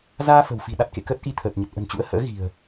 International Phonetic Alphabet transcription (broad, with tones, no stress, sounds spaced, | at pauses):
z aː˧ f ə̤˨˩ w f i̤˨˩ ɗ a˦˥ t̚ k ḛ˧˨ k əː˦˥ t̚ ʔ i˧ t̪ʰ əː˨˩ t̚ ɲ ə˨˩ t̚ ʔ ə̤˨˩ n t͡ɕ ṵ˧˥ ə̯ h ə̰ː˧˥ ɣ i̤˨˩ ə̯